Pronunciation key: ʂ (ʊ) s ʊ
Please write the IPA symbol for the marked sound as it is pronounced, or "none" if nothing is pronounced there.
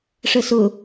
ə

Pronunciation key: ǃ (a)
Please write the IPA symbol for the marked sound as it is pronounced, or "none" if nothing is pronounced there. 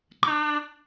a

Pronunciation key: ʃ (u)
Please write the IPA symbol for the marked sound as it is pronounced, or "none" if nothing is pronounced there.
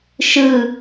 ɯ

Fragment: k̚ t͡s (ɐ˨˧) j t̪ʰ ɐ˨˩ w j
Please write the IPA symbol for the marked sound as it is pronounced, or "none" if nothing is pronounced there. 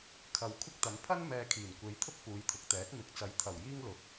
ɐ˨˧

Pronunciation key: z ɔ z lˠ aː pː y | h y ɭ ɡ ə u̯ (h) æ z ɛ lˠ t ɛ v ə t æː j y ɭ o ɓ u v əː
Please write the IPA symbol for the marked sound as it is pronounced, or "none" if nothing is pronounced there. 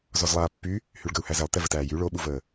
h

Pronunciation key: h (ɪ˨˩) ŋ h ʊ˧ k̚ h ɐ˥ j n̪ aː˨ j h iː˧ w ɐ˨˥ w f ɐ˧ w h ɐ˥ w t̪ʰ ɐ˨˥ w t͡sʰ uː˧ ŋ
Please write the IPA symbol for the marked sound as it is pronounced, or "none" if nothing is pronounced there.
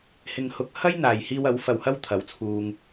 ɪ˧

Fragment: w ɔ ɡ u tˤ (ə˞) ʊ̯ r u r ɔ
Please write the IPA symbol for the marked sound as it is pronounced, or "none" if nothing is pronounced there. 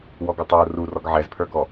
ə˞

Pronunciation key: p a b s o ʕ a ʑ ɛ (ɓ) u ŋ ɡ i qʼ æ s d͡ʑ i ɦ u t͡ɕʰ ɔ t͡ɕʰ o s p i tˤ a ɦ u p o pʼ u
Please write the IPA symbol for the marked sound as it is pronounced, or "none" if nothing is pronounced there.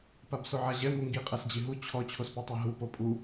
m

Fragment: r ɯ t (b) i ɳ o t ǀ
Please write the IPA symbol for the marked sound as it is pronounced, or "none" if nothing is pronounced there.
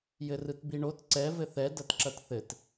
b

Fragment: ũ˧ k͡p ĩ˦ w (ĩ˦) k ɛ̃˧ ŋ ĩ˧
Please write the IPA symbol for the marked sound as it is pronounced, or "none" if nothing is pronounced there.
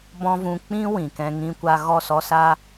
ĩ˨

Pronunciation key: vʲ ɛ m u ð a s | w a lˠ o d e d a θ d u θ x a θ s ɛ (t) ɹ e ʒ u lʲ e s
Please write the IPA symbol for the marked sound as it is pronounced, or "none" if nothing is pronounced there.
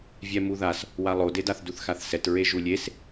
t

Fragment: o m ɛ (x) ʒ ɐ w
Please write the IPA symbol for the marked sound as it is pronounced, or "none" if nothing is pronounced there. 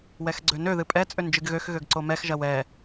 x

